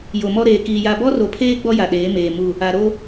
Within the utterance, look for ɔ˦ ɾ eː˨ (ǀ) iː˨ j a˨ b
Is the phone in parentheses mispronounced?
yes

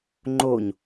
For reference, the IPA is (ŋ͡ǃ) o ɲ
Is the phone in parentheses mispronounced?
no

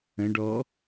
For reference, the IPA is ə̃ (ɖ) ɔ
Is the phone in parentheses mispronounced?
no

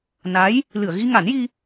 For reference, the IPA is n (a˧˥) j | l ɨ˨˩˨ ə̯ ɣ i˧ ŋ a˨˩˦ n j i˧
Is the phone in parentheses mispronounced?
no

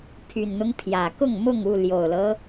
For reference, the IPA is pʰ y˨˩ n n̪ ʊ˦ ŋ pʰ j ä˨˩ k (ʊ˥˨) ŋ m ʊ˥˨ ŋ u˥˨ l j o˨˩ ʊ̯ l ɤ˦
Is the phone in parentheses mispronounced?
no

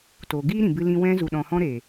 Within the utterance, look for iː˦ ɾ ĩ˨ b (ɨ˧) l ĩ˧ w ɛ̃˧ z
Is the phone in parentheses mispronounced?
no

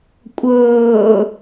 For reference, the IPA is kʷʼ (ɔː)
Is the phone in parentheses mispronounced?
yes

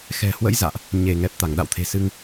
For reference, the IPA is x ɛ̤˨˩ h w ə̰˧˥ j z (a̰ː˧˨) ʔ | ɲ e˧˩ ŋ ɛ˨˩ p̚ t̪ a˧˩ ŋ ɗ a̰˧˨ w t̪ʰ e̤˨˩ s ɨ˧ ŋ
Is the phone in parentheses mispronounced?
no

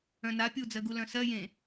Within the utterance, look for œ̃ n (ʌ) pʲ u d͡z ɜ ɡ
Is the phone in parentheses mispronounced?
yes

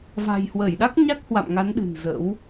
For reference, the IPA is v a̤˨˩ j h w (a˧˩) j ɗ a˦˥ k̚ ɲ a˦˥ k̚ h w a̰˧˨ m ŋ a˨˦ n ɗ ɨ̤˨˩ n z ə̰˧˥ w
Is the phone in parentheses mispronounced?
yes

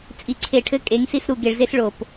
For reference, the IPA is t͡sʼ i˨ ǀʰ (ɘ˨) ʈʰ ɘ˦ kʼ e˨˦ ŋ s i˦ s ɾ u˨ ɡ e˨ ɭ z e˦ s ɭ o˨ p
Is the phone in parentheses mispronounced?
yes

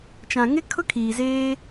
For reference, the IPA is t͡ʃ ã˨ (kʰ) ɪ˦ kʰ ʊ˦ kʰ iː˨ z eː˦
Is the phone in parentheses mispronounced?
yes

